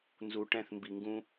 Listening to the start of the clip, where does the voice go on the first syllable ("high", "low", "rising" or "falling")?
low